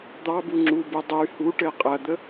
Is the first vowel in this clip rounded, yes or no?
no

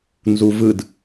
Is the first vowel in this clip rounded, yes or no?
yes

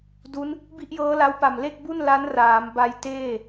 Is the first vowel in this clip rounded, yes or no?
yes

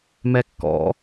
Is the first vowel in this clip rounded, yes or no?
no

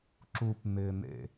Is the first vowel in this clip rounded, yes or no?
yes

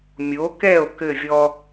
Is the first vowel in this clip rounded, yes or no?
yes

